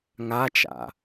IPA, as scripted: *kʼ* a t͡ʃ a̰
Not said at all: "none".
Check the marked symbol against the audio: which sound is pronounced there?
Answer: ŋ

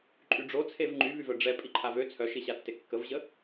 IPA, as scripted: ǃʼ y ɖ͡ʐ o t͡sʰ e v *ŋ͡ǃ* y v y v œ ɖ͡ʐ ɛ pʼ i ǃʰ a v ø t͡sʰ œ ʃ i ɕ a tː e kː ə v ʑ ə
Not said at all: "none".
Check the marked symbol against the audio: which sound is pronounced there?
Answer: ŋ͡ǃ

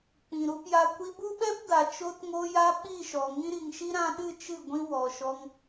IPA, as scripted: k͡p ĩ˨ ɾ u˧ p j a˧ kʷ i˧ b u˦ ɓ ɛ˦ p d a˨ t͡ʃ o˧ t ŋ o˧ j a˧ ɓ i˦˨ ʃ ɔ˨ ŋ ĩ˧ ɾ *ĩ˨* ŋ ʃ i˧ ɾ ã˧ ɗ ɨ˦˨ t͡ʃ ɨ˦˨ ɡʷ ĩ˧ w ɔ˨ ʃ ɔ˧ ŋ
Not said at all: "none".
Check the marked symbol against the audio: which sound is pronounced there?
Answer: i˨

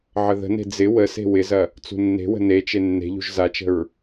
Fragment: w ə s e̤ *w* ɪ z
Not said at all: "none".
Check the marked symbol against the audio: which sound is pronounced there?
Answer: w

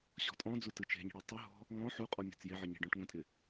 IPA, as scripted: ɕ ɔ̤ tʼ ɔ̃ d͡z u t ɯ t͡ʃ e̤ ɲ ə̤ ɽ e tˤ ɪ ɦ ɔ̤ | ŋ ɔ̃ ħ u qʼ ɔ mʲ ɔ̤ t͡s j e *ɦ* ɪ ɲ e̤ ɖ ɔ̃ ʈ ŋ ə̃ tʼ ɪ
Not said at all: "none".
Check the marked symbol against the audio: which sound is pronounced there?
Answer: ʕ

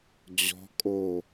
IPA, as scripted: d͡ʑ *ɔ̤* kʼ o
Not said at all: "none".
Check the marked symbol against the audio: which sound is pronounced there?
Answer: ɔ̤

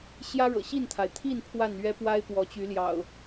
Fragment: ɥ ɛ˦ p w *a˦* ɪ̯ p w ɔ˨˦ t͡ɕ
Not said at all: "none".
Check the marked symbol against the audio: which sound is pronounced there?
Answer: a˦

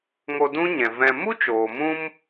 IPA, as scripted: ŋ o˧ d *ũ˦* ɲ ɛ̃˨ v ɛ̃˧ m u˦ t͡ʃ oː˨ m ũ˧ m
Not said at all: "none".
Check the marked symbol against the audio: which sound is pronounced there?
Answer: ũ˦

